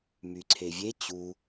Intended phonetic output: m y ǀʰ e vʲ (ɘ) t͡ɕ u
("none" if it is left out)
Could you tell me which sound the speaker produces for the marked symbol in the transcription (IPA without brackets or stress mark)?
e